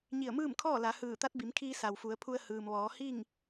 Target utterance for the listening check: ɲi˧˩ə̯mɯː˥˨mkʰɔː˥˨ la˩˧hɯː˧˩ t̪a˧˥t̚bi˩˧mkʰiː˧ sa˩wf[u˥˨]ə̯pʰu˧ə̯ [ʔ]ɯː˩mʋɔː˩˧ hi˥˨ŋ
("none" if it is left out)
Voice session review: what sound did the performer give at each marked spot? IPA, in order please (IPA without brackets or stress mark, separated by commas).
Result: u˩˧, h